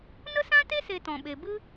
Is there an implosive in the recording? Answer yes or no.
yes